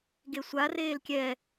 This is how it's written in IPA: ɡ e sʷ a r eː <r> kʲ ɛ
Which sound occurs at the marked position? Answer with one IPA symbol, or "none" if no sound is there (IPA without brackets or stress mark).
l